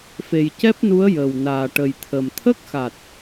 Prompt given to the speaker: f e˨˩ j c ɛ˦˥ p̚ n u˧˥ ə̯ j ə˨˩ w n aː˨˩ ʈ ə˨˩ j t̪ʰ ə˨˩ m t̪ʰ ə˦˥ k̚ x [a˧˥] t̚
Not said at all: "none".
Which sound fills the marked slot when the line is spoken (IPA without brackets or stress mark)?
a˨˩